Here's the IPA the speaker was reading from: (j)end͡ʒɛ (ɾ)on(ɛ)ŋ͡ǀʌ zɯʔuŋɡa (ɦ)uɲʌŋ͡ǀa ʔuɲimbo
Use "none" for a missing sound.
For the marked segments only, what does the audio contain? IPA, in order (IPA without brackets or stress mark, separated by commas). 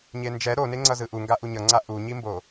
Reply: ɲ, ɾ, e, ʔ